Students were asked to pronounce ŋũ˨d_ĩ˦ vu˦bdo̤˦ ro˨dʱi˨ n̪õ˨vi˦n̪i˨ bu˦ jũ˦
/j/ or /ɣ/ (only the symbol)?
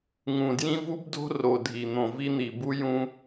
j